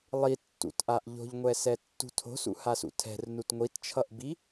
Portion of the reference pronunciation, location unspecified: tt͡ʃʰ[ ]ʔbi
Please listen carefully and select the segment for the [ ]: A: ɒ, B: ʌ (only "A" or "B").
B